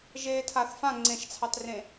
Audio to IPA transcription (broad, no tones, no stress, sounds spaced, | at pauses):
ʒ eː tʰ a θ f ã ŋ͡ǀ ẽ ʃ t͡sʰ ɑ t r ẽ